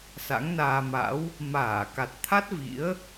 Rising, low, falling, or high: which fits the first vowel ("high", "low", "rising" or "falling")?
rising